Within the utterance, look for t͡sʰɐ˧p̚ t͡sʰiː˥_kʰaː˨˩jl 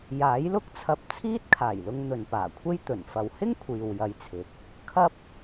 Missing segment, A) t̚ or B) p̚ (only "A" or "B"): A